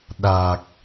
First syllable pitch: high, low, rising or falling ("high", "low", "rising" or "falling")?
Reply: low